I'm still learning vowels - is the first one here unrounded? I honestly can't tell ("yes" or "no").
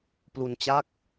no